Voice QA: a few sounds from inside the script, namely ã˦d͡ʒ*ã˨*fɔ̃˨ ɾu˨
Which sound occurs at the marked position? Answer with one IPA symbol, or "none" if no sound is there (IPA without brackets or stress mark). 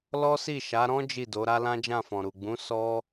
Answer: ã˦˨